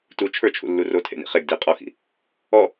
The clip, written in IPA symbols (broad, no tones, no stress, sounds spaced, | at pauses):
t u t͡ʃʰ ə˞ t͡ʃʰ ṵ lː u r o tʰ ḛ n ḭ χ e ɡ d i qʼ ɔ x ḭ | ɔ